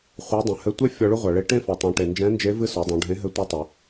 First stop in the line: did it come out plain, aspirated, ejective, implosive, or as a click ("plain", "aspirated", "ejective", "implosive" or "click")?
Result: plain